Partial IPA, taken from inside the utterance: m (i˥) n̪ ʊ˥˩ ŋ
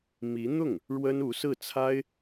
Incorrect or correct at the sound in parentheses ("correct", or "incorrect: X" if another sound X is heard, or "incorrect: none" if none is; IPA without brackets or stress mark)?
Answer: incorrect: i˧˥